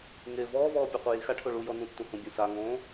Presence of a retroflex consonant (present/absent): present